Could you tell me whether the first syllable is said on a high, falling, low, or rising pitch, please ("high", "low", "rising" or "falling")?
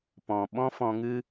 low